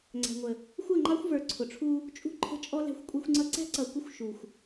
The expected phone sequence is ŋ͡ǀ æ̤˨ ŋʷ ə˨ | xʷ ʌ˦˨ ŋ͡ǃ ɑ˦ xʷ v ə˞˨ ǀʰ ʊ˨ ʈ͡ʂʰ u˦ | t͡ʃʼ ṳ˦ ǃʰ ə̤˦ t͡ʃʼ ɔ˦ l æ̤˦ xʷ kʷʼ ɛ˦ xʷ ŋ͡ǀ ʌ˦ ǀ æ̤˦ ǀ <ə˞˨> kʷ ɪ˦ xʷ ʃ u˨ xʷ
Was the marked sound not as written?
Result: yes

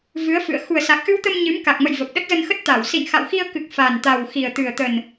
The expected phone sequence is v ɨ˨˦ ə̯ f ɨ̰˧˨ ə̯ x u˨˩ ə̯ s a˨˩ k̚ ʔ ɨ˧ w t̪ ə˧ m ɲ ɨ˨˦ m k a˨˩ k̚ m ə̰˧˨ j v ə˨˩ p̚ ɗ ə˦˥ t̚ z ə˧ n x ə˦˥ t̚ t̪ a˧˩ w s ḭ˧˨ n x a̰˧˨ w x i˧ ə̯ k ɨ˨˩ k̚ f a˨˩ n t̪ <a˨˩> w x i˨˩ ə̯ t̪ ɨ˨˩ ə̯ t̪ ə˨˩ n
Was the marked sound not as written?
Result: no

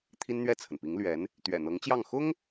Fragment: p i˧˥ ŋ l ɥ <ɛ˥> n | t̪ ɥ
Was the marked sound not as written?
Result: yes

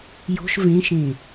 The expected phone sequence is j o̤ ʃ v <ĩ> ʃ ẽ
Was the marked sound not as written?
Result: yes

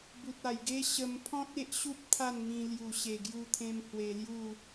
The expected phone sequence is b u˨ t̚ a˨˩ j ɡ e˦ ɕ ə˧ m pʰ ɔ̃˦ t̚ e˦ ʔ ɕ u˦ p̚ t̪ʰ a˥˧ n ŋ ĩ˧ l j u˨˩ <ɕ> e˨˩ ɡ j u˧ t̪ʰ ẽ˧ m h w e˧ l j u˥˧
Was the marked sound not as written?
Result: no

